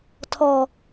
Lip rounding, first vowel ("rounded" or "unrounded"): rounded